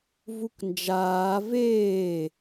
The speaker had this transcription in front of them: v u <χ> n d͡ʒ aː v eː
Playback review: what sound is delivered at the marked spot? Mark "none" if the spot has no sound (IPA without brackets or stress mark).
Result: k